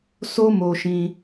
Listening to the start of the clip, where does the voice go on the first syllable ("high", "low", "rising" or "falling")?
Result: high